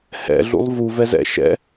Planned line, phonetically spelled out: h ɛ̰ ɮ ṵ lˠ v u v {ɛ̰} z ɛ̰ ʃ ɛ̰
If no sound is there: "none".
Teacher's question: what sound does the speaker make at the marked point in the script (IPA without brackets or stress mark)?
ɛ